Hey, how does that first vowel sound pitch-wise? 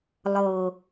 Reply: low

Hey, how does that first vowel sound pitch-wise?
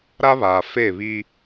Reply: high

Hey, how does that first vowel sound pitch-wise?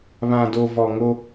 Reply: low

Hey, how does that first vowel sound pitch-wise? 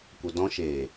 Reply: low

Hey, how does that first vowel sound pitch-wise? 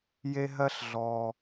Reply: high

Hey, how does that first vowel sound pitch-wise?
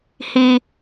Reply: high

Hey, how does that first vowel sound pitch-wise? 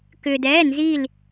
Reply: low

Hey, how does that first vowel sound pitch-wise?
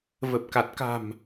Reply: low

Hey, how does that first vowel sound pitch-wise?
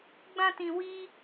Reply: high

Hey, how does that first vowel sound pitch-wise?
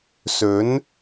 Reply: rising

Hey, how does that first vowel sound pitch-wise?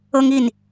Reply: high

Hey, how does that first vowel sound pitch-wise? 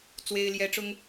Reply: high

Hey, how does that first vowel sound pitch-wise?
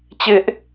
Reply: high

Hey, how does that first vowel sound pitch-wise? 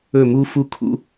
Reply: falling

